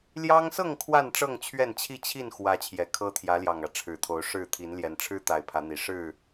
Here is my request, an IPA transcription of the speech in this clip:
ljɑ˦ŋsɤ˥˨ŋ kʰwa˥˨n ʈ͡ʂɤ˥˨ŋt͡ɕʰɥɛ˥˨nt͡ɕʰi˥˨ t͡ɕʰi˥˨nxwä˨˦ t͡ɕʰjɛ˨˩kʰɤ˦t̪ʰjä˨˦ljɑ˨˩ŋ ä˨˦ʈ͡ʂʰɻ̩˨˩ t̪ʰo˨˦ʊ̯ ʂɻ̩˥˨ t̪ʰi˨˦nljɛ˨˦n ʈ͡ʂʰɻ̩˦ t̪a˨˦ɪ̯pʰä˨˦n̪i˨˩ ʂɻ̩˥˨

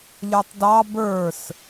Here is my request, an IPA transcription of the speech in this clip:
ʎə˞tˤdɑ bə˞s

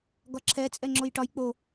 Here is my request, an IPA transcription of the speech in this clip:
ɡɒǁʰɛ t͡sʼɛŋ͡ǁojʈɒj k͡po

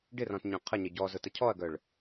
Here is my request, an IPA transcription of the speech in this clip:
ɖɪrɔ̃tɲœ̃ qʰəɲə ɟɔzʊtə cʰɔɐ̯ɡœɭ

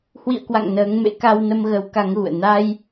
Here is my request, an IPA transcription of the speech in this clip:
hwḭ˧˨ə̯kwa̰˧˨ŋ nəː˨˦ŋmḛ˧˥ ka˧wnə˧mɣə˨˦w ka˨˦ŋɣṵ˧˨ə̯ na˧j

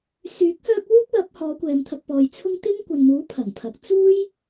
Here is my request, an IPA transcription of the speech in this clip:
syː˨˥k̚ hœː˥p̚ wuː˥p̚wɐ˨˥p̚ hɔː˨˧kʷɛː˨mt̪ʰɐ˧k̚pɔː˨j t͡sʰʊ˥ŋ t̪ɪ˥ŋ kʷɐ˨nn̪uː˨˥ pʰɐ˨˩ŋpʰɐ˨˥k̚ t͡suː˥j

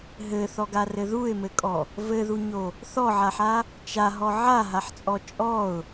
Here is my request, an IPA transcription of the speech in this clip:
ɦɘθɔɡarɘ ðuɪ̯mɘkʼɔ | vɘðuɲo | θɔʕaħa | t͡ʃaɦɔ ʕaɦaħt͡sʼɔ t͡ʃʼɔʊ̯

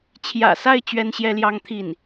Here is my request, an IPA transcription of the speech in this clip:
t͡ɕʰjä̰˨˩sa˥˩ɪ̯ t͡ɕɥɛ˥nɕjɛ˥ljɑ˥ŋt̪ʰi˥˩n

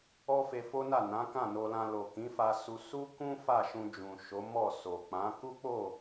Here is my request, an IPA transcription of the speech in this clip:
ɔ˦fe˧fo˦na˦˨ nã˨˦kã˦˨no˧lã˧ lo˨kĩ˨˦fa˧ su˧ su˦kũ˦ fa˦˨ʃũ˧d͡ʒũ˨ ʃo˨˦mɔ˦˨so˨ k͡pã˨˦ ku˦k͡po˦˨

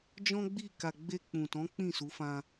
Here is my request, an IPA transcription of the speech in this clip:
d͡ʒɔ̃˦ɡ͡bi˦˨ka˧ ɡ͡be˧ k͡pũ˨tɔ̃˨˦ k͡pĩ˦˨su˨˦fã˧

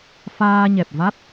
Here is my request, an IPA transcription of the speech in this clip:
faː˧ɲɛ˨˩p̚va˦˥t̚

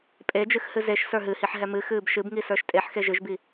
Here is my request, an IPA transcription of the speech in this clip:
pʼed͡ʒɨx hɨzeʃsə˞ ɦɨhiħ ɦɛmɨxɨːb ʃɨbŋi sə˞ʃtʼeħxe ʒɨʒbi

